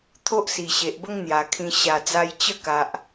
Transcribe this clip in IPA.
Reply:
t̪ʰo˦ʔsi˨˩ɕe˨ʔbə˦ŋ n̪ja˨˩kʰĩ˧ ɕa˨˩d͡za˧j t͡ɕə˥˧ka˨ʔ

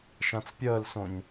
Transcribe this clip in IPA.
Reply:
ʃãt͡spʲəːlsõɲ

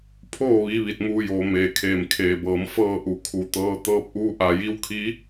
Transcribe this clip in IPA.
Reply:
pʰoː˥˨ ʋiː˧˥ʋi˧˩t̚muː˧joː˩˧ meː˩kʰeː˧˩mkʰeː˩bɤː˩˧m fɤː˥˨ʔu˩kʰu˩˧t̪ɤː˧˥ t̪ɤː˧p̚ʔuː˧ ʔa˧˩ji˧˥wkʰi˧˥

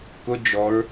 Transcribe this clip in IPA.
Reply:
kʊ d͡ʒɔɹ

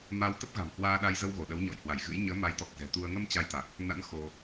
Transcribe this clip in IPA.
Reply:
ma˧wt̪ə˦˥p̚ɣa̤˨˩m hwaː˧ɗa˧jzə˧w ɣo˧˩ɗə˨˦wɲɔ̰˧˨j hwa˧˩j ɣɨ̰˧˥j ɲəː˨˦ ma˨˦jt̪ɔ˨˩k̚zɛ̤˨˩t̪u˧ə̯ ŋə˧m t͡ɕa˧jt̪a˨˩k̚ | na̰˧˥n xo˧

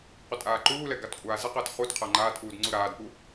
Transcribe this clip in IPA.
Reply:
qʷɪtʼaːǃuːlɛ ɡatkʷʼaːzɛqəːt χutqʰa ŋ͡ǃaːtʔuːd ŋ͡ǀuɾaːdpu

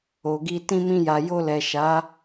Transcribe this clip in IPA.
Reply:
o˨ɡi˧ tĩ˧mĩ˧ja˨ jo˧lɛ˨ ʃa˨˦

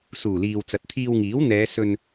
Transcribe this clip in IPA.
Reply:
suː˨˩liː˨wt͡sɐ˨t̚ t̪ʰiː˧wŋiː˨˥wn̪ɛː˨˧ sɵ˧n

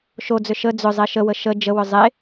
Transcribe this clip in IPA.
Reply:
ʃod͡zʏ ʃə d͡zʏzˤe ʃəwə ʃə d͡ʒəwʏ zˤe

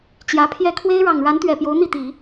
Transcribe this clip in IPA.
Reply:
t͡ɕjä˧˥pʰjɛ˥˩ kʰwe˥ɪ̯ɻɑ˨˩ŋɻa˧˥nt̪ɥɛ˨˩ pjo˧˥ʊ̯n̪i˥˩t̪i˨˩˦

